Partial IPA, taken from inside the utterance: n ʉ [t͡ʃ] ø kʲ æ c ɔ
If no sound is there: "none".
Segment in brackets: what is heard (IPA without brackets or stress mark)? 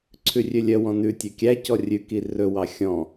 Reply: tʲ